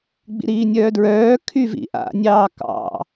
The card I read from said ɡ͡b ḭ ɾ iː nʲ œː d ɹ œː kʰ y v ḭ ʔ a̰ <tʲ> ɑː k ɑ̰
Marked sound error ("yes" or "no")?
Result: yes